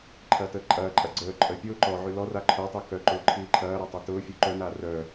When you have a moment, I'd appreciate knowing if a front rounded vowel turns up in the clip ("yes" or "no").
yes